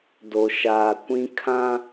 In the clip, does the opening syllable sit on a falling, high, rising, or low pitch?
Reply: low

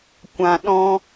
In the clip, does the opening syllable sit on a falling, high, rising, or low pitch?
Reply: low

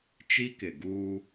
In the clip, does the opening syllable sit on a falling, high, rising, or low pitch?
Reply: high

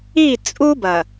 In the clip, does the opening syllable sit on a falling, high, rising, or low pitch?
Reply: falling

